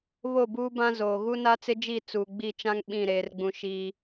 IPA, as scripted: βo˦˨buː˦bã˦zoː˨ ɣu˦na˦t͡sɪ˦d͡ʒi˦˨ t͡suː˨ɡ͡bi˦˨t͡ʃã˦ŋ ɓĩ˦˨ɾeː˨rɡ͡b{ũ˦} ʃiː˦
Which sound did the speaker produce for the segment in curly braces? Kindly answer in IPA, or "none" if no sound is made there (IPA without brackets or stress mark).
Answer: ũ˨